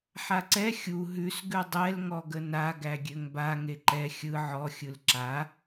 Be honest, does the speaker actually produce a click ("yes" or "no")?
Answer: yes